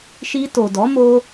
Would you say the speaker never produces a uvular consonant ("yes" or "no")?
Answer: yes